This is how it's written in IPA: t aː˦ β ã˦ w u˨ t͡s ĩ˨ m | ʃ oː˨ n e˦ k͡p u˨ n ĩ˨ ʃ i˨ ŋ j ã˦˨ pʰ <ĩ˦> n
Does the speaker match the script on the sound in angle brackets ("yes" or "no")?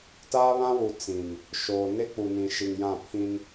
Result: yes